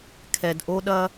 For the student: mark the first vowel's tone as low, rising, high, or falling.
low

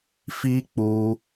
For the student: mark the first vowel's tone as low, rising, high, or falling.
high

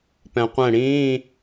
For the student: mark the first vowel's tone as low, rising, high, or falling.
low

